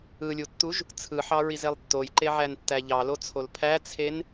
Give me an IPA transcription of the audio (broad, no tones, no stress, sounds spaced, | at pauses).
ɯ lʲ u tː u ʒ | t͡sʰ ɯ ħ ɑ ɹ i z e lˠ tː o j ǃ e ʕ æ n tː æ ʎ ɑ l o t͡sʰ o l pʰ æ t͡sʰ e n